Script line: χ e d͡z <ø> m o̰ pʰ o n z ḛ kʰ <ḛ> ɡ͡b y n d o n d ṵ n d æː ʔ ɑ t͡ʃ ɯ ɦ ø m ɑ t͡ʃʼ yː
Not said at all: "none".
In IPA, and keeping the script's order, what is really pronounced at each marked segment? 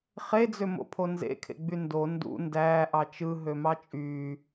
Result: ø, ḛ

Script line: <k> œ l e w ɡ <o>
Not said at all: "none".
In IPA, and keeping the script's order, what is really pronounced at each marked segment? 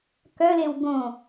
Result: k, õ

